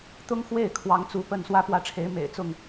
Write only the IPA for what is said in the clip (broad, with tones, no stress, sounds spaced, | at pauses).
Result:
t̪ ʊ˦ ŋ x w e˥˨ ɪ̯ kʰ w ɑ˨˦ ŋ t͡s u˨˦ p ə˥˨ n s w ä˥˨ p w ä˦ ʈ͡ʂʰ e˨˦ ɪ̯ m ḛ˨˩ ɪ̯ t͡s ʊ˥˨ ŋ